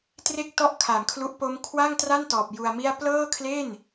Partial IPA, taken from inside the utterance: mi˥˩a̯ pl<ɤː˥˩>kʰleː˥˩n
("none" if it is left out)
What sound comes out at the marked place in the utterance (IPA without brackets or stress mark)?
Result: ɤː˥˩